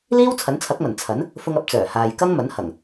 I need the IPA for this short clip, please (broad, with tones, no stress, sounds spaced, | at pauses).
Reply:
l iː˥ w t͡sʰ ɐ˨˥ n t͡sʰ ɐ˨˥ k̚ m ɐ˨˩ n t͡sʰ ɐ˨˥ n | f ʊ˧ ŋ ɐ˨˥ p̚ t͡s œː˨˩ h aː˨ j k ɐ˥ ŋ m ɐ˨˥ n h ɐ˨˩ ŋ